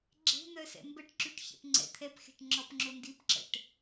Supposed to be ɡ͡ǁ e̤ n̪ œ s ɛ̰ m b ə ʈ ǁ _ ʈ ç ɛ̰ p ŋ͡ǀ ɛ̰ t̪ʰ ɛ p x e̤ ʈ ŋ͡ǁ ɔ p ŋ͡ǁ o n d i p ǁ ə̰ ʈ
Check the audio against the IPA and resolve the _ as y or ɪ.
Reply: y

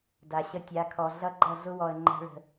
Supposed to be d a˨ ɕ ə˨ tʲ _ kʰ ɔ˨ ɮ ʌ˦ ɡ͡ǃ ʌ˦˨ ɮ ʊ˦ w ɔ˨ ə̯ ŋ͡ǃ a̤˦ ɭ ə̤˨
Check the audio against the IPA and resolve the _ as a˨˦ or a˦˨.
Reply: a˨˦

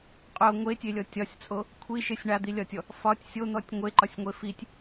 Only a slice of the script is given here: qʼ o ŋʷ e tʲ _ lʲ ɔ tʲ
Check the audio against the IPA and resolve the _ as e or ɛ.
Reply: e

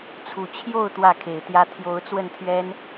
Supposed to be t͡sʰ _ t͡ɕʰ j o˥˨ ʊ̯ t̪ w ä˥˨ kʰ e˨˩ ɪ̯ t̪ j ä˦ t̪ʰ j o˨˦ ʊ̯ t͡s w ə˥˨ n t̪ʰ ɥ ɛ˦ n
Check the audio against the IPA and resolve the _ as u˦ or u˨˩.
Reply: u˨˩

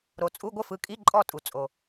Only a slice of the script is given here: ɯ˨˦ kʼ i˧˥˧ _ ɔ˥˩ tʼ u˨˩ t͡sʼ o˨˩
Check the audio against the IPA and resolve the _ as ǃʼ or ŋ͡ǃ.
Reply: ǃʼ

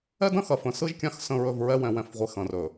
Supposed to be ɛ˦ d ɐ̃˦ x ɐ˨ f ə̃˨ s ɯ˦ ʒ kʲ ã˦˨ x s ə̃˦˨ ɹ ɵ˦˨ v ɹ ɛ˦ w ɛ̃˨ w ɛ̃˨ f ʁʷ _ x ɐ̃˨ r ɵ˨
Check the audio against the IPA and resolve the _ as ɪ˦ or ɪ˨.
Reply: ɪ˨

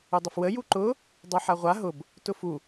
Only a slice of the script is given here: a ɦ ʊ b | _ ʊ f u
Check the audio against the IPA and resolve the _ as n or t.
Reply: t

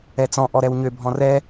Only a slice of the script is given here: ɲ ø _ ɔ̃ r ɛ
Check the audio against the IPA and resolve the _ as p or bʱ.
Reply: bʱ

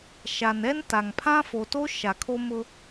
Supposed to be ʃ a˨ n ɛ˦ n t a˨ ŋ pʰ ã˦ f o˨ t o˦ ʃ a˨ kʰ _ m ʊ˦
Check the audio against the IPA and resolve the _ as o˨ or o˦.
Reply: o˦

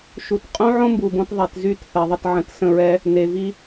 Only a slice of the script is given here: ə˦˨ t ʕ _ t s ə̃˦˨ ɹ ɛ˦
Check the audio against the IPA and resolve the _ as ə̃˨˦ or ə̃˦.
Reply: ə̃˨˦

